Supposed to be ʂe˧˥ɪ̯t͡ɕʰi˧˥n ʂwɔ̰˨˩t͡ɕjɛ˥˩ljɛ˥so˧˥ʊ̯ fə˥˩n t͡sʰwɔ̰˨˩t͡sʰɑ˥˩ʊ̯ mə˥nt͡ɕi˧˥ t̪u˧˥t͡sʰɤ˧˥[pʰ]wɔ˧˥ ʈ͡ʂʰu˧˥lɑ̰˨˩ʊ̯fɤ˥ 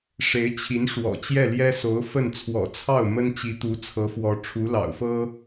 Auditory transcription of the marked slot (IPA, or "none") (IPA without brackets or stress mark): f